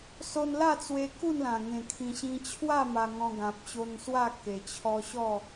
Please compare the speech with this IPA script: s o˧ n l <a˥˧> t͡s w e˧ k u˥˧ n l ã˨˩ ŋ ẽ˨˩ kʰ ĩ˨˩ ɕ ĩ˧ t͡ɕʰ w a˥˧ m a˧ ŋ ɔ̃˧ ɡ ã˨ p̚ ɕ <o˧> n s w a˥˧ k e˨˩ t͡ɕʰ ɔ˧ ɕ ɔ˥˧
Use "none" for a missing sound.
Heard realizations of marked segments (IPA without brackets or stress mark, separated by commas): a˥˧, o˧